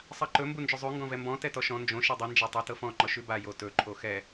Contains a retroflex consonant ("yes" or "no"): no